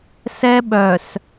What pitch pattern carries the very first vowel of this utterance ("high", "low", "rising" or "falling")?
high